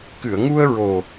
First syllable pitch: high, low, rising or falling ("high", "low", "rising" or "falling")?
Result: low